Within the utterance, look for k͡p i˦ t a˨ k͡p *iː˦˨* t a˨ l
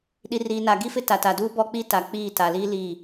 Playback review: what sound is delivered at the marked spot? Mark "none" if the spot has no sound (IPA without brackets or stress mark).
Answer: iː˦˨